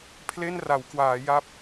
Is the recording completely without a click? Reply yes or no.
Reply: yes